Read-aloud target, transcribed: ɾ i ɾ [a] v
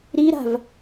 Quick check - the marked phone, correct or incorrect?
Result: incorrect